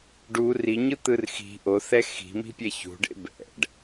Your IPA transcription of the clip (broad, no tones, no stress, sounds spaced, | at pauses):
ɖ u r i ɲ ɯ t̪ ɯ r x i̤ ʔ o θ ɛ x i̤ m i̤ pʲ ɛ ç ṳ ɖ ḛ b ɛ̰ ɖ